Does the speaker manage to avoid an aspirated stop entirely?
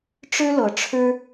no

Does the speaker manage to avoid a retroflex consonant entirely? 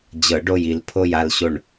no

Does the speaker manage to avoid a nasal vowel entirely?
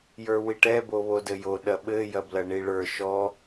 yes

